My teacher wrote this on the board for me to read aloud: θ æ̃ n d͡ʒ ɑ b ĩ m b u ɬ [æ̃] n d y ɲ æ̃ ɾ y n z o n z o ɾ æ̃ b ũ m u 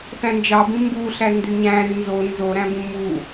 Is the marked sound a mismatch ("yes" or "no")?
yes